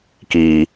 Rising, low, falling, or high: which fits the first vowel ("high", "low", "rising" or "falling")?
low